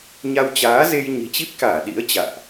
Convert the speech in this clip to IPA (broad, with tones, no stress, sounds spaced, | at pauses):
ɲ a˧ w t͡ɕ aː˨˦ z e˧ j ɲ i̤˨˩ t͡ɕ i˦˥ p̚ k aː˧˩ ɗ ḭ˧˥ ə̯ t͡ɕ a̰ː˧˨ ʔ